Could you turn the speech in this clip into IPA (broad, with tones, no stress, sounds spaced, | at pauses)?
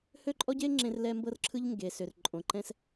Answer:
h ø˦ ǃʼ ɔ˦ ɟ e˦ ŋ͡ǁ ẽ˦ r l ɛ˦ m b ɤ˦ r ǁʰ ɯ˦ ʎ ŋ ɡ e˨ s ʏ˨ r ǃʼ õ˨ ǃ ɛ̃˦ s